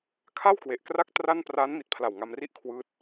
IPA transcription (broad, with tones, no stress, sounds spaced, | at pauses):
kʰ a˥˩ w k w e˨˩ ʔ k r a˥˩ k̚ t r a˥˩ n p r aː˦˥ n m i˨˩ t̚ pʰ l a˨˩ w ŋ a˧ m r i˥˩ ʔ kʰ w ɯː˦˥ t̚